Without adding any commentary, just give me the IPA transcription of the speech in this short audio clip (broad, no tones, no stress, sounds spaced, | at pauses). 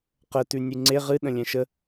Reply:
q ə t ʉ nʲ ʉ ŋ͡ǀ e ʁ ɨ ɗ ə̃ lʲ ɛ̃ ʃ ə